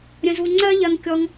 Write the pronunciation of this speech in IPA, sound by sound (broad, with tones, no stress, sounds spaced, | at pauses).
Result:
ɾʲ ə̃˧ z u˧ ŋ͡ǀ ɜ˥ ʎ ɜ˧ ŋ kʲ ɔ˧ ŋ